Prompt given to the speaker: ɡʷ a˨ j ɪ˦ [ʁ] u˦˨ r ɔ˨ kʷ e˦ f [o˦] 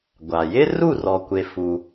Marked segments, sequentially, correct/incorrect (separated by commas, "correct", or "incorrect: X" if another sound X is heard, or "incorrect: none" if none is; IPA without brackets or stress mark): incorrect: r, incorrect: u˦